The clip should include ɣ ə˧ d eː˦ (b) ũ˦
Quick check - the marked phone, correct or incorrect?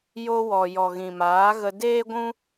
incorrect